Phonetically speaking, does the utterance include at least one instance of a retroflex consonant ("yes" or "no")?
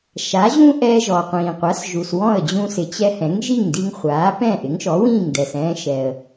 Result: no